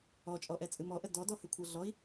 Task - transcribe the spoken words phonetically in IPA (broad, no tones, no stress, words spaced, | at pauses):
ɔt͡ʃʼɔʔɛt͡sʼɨ mɔʔə dɔdɔhʉkʷʰɤ ɮɔi̯